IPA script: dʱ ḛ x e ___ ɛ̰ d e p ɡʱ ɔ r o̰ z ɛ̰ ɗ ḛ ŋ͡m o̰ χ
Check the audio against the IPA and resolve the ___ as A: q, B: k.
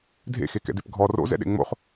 B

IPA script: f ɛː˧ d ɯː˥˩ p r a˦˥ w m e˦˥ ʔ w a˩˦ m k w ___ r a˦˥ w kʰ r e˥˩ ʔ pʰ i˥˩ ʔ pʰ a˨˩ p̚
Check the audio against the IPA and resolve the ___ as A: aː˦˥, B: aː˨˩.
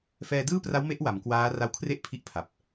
A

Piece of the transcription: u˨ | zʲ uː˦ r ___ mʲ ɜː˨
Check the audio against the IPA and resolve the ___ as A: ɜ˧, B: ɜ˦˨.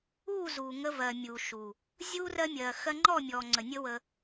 A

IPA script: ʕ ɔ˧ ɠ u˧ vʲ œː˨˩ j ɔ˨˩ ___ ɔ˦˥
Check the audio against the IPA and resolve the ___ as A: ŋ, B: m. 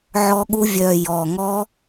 A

